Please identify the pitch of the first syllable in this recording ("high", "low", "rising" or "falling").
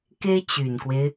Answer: high